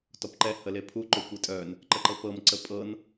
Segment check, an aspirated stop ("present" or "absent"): present